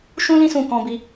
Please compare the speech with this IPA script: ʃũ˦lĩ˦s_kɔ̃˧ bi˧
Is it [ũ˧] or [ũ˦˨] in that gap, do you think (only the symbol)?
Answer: ũ˦˨